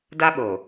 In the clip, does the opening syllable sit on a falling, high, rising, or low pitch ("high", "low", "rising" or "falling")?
high